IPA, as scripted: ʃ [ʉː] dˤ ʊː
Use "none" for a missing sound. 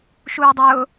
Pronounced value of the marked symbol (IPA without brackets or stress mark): uː